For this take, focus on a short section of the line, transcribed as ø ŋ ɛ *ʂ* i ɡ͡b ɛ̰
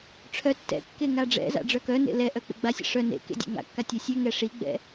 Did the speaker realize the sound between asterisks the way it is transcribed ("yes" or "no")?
yes